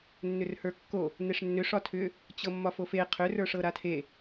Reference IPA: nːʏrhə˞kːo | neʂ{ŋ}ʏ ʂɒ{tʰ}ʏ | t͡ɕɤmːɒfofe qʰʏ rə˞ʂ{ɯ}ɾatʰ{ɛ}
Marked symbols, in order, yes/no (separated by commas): no, yes, no, no